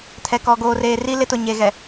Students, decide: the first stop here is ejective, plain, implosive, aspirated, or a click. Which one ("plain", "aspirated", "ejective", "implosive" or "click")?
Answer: aspirated